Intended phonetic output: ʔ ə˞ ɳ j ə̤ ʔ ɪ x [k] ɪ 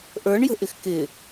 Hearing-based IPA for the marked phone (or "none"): k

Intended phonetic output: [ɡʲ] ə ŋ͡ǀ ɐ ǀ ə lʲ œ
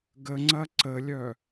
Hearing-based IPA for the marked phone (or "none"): ɡ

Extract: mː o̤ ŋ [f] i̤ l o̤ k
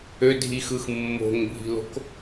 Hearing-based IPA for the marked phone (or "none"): bʱ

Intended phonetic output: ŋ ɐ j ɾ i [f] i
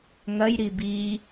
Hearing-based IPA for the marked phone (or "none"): b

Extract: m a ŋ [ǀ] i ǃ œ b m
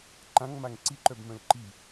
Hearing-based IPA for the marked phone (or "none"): ǀ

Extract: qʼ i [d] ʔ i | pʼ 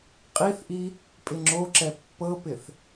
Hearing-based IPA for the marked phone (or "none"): θ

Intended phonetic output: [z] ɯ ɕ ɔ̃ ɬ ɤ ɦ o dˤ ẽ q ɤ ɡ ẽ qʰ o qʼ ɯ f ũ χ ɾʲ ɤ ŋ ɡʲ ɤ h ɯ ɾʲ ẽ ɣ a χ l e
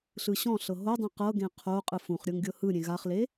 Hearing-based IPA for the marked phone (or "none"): ɬ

